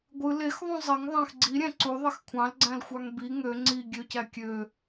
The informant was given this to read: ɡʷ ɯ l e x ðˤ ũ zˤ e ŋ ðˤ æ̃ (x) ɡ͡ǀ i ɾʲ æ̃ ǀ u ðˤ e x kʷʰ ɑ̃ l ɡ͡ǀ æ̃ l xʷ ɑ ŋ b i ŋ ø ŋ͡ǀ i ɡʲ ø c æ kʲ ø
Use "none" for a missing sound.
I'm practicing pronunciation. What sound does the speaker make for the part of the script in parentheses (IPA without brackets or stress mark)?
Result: x